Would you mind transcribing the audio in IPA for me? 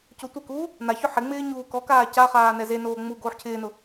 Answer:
cotʷekuː | naçʊ ħɪŋ͡mɪː ɲuːkɔkaː caχaː nɛzenoː ŋ͡mu ɡoːħcʰɪːnʊ

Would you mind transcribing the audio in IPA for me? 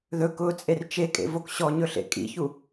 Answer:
ðɵ kʊːt͡sʼert͡ʃekʼḛ vokɕɔɲɵɬḛ kʼḭçu

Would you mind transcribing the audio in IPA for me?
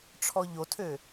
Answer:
ʈ͡ʂʰɔʎotʰø

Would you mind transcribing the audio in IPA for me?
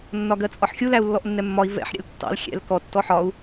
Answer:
nːɒɡɜt͡sʼɒħxʲu læu̯lːɔʔnːɛmːɒi̯ vɛ̰ħ ɾʲɛ̰ltːɑ̰l xʲɛ̰l kɔ tːɔħɒu̯

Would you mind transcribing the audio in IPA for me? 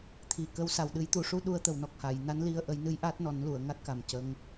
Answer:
t̪ʰi˨˩kə˧˥wsa˨˩w ɗɨ˨˩˦jt̪u˨˩˨ʂu˧ ɗu˧ə̯t̪ə˨˩wnɔ˨˩k̚ha˨˩˨j na˧˥nli˧ə̯ʔə˨˩˦jnɨ˧˥j ʔa˦˥t̚nɔ˨˩˦nlu˨˩˨ə̯ŋa˦˥t̚ ka˨˩mcə˧˥ŋ

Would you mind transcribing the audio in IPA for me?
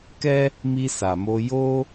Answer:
kɛ˦ | mi˧sa˨ mo˧jo˦

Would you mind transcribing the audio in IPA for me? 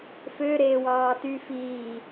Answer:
fø ɾeːwɑːty fiː

